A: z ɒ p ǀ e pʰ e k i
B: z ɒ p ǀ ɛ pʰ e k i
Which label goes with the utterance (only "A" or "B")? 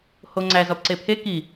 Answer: A